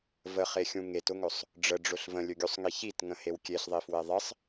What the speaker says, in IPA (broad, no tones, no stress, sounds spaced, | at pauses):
v ə χ e xʲ ũ ŋ e t ʊ ŋ ɵ sˤ | ɖ͡ʐ ə ɖ͡ʐ ʊ ɬ v ə̃ lʲ ɵ ɡʲ u sˤ ŋ i ç i t ŋ ə̃ h e w kʲ e ɬ ðˤ i f w e ðˤ ɪ sˤ